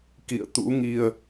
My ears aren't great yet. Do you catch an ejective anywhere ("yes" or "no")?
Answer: no